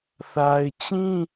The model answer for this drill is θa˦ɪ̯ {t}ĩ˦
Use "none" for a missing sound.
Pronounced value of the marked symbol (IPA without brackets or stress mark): t͡ɕ